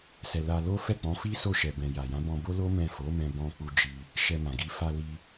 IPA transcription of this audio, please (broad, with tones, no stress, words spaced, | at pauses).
sɛ˨la˧lo˦ fɛ˦˨k͡pɔ̃˨˦fi˦ so˦˨ʃɛ˨bɛ̃˨ja˨ jã˨˦bɔ̃˧bo˦ lo˦ mɛ̃˦˨ fo˨˦mɛ̃˧bɔ̃˧k͡pu˧ d͡ʒi˧ | ʃɛ˧mã˨ɡi˧ fa˧li˧